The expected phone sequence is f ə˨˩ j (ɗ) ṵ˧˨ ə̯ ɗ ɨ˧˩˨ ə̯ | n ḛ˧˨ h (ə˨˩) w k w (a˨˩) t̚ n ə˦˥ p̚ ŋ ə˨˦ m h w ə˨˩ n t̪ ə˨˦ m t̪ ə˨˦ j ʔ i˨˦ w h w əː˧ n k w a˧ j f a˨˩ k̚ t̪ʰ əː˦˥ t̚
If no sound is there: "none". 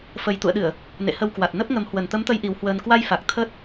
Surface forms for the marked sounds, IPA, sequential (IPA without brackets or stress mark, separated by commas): t̪, ə˧, a˨˩